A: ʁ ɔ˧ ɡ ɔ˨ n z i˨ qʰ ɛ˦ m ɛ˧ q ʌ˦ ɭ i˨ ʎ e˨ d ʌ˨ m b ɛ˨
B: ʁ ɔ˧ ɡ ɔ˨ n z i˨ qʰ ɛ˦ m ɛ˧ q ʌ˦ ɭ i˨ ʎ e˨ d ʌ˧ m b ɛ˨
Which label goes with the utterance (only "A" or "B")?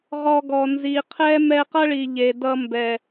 B